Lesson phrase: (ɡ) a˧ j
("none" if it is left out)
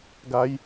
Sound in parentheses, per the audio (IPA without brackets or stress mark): ɡ